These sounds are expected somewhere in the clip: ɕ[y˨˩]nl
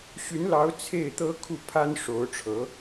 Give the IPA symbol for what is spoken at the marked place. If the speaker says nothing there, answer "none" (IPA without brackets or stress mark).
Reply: y˧˥